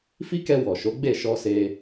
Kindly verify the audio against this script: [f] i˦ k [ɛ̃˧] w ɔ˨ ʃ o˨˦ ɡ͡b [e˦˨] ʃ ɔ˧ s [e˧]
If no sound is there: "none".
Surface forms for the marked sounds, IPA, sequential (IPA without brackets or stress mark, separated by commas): f, ɛ˧, e˦˨, e˧